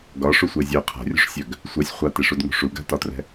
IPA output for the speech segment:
ɡ ɒ ʂ u sʷ e zʲ œ qʰ a̤ rʲ ṳ ʂ sʲ œ ɡ | sʷ ɛ sʲ χʷ a t e ʂ u d ŋ ṳ ʂ u ɡ a̤ t ɒ t r ɛ̤

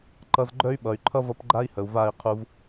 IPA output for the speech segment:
ǃ ʌ˧ z ɡ͡ǃ œ˦ y̯ ɓ ʌ˨ y̯ ǃʰ ʌ˦ v ʌ˧ p ɡ͡ǃ a˦ i̯ h ə˨ u̯ v a˦˨ i̯ qʰ u˧ v

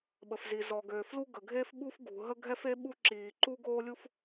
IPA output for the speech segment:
ɓ ə˩ f z i˩ z ɔ˩ ɡ øː˩ f l u˥ ɡ ə˩ ɡʱ eː˥ f ɓ u˥ f ɡ ṳ˩ ɦ ə˥ ɡʱ ɛ˥ f e˥ ɓ u˥ ǁ iː˩ ǃ u˥ ɡ oː˥ lʲ u˥ f

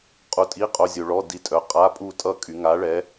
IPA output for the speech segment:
qʼ u˧ tʼ i˧˥˧ qʼ o˧˥˧ zʲ o˧ ɭ ɔ˧˥˧ d i˧ tʼ œ˨˥ qʼ a˧˥˧ pʼ u˥˧ tʼ ʌ˥˧ kʼ y˩˧ ŋ a˨˥ ɭ ɛ˨˥

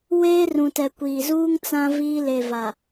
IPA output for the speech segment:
w eː˦ r ũ˨ t ɛ˨ kʷ iː˨ z uː˦ ŋ t͡s ã˦ v iː˦ l e˨ v a˨

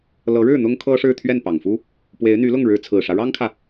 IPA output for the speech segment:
l ɤ˧˥ ɻ ɻ̩˥˩ n̪ ʊ˥ ŋ kʰ ɤ˥ ʂ ɻ̩˥˧ t̪ʰ ɥ ɛ˥˩ n p ɑ˨˩ ŋ f u˥ | p w e˧˥ ɪ̯ n̪ y˧˥ l ʊ˥˩ ŋ ɻ ɻ̩˧˥ t͡sʰ ɹ̩˨˩ ʂ ä˦ ɻ ɑ˥ ŋ kʰ ä˨

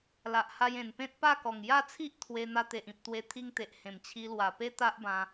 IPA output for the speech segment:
l a˨ ʔ h a˧ j ẽ˨˩ n p ẽ˦ t̚ p a˥˧ k ɔ˨˩ ŋ j a˥˧ t͡sʰ i˦ ʔ t̪ʰ w e˧ n̪ a˧ t̪ e˨ ʔ ĩ˨ p̚ t̪ w e˧ t̪ʰ i˧ ŋ t̪ e˨ ʔ h ẽ˨˩ m t͡ɕʰ i˧ l w a˨˩ p e˦ t̪ a˦ ʔ b ã˧

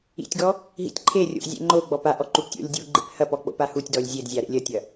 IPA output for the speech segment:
ḭ tʲ ɡ ɔ | ɦ ḭ tʲ ǃʰ e rʲ o̰ ʔ zʲ ḛ ŋ͡ǃ o ɡ͡b ɔ p a ʔ ɔ ǃ u p tʲ o̰ lʲ dʲ u ɡ͡ǃ ḛ p h ɐ p ɔ k͡p o̰ p a h u tʲ d ɔ lʲ zʲ e d zʲ a ɾ ḛ lʲ ɐ tʲ ɐ

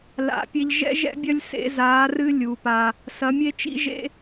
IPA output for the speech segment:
l a̰˧˥ pʲ e˥ ʎ ʒ ɛ̰˥ ʒ ɛ̰˥ bʲ ɐ˥ lʲ s ḛ˧˥ z aː˧˥ r ɨ˥ lʲ u˧˥ p a˥ | s ɐ˧˥ mʲ e˥ t͡ʃ ḭ˥ ʒ ḛ˥

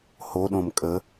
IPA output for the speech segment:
h o ɗ õ m kʼ ə

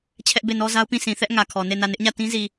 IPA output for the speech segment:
t͡ɕʰ ɛ˦ ʔ b e˦˨ n ɔ˦ z a˦ ʊ̯ p ĩ˦˨ s ĩ˨ θ ɛ˦ ʔ ŋ ä˨ kʰ ɔ˨ n e˦˨ n ä˦˨ n ɪ˦ ʔ ɲ ä˦˨ t ĩ˦ z i˨

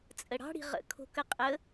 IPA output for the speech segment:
t͡sʼ ə ɽ ɑ̤ ɽ i̤ ʁ ə̰ kʰ o̤ k ə qʼ ə

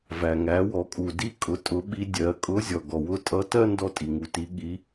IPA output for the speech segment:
v æ˩ ŋ æ˩˧ w ɔ˩˧ kʼ u˩ d i˧ kʼ ʊ˩˧ tʼ ʊ˩˧ ɓ i˧ dʲ ɜ˩˧ kʼ ʊ˧˥ zʲ ɔ˩ ɡ ɔ˩ w ʊ˧˥ tʼ ʌ˧˥ t ɜ˥ n d ɔ˧ tʼ i˩ ŋ u˩˧ t i˩˧ ɠ i˩˧

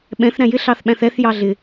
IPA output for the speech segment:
ɓ ɛ̃ θ ɾ æ̃ j ɪ ɬ ɑ θ ɓ æ̃ θ ɛ θ j ɑ ɮ ɪ

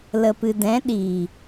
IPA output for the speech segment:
l ə˨ p ɨ˨ d ɛ̃˨˦ ɗ iː˨

